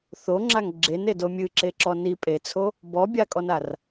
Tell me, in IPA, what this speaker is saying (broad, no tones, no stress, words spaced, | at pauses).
θoŋ͡ǁaŋ ɡ͡ǁenedo mʲɨǁeǁɔ ni pʼet͡sʰo | bɔbʲakʼɔnar